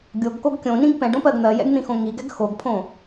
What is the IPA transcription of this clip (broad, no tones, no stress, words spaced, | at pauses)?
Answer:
ɡʲoɡkoɡ kʲõnĩɡ pɛ̃ɖõpɜɡ n̪ɜjɛ̰ɡn̪ĩxõ ŋiɡɛɡ xoɡpʰõ